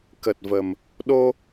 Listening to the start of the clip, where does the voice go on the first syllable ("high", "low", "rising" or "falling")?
low